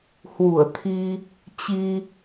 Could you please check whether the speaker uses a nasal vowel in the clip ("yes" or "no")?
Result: no